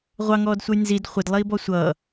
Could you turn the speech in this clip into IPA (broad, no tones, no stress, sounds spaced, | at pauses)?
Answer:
ʁʷ ɑ ŋ ɔː d sʷ ʌ j n z i d χʷ ɪ d lˠ iː b ɔ sʷ ʌː